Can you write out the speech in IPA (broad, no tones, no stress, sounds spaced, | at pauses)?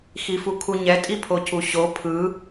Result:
x i f u kʰ u ɲ ɛ tʼ i pʰ o c u ɕ o pʰ ɯ